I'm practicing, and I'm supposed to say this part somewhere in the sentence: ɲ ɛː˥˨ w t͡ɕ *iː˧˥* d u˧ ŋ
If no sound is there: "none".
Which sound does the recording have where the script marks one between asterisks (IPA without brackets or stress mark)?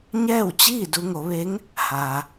iː˥˨